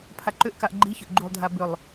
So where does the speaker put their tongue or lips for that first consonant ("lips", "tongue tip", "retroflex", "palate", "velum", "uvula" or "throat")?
lips